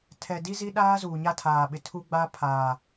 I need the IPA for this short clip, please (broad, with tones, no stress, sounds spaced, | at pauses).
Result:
tʰ ɛ˨ d i˦ z i˦ ɗ aː˦ z uː˨ ɲ a˦ tʰ aː˨ ɓ ɪ˨ tʰ u˦ ɡ͡b a˦ pʰ aː˨